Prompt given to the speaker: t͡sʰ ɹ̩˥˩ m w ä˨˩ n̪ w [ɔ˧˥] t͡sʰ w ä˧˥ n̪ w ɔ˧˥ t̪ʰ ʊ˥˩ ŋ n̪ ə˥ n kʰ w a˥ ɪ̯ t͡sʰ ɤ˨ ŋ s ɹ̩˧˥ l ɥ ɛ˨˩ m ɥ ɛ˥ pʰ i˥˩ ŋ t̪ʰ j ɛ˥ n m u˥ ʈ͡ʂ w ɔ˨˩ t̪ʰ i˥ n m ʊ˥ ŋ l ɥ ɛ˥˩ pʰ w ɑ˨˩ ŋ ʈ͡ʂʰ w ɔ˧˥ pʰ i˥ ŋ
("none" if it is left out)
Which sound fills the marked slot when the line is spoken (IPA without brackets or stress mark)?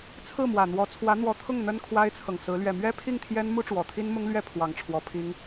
ɔ˧˥